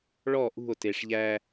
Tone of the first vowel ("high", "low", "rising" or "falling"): falling